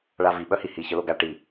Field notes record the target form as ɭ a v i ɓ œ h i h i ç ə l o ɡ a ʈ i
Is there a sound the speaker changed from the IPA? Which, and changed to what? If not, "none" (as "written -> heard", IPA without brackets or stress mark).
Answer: none